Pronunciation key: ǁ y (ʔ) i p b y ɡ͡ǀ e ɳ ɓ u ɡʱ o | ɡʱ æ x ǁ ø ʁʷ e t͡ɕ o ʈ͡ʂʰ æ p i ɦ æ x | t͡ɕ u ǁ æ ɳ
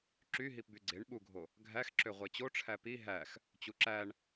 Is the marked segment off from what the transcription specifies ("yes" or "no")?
yes